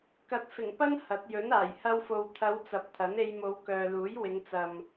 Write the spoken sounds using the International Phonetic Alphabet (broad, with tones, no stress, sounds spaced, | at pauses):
k ɐ˨˥ t̚ f ɪ˨˩ ŋ p ɐ˥ n h ɐ˨˥ t̚ j ɵ˨˥ n aː˨˩ j h ɐ˧ w f o˨ w t̪ʰ ɐ˨˧ w t͡s ɐ˨˥ p̚ t̪ʰ ɐ˨˥ n e˧ j m o˨˧ w k œː˨ l uː˨˥ j w ɪ˨˧ ŋ t͡s ɐ˨ m